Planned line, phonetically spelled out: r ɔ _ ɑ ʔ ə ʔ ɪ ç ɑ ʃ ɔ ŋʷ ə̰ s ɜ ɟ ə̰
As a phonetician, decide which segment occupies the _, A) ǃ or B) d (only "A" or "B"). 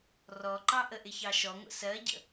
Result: A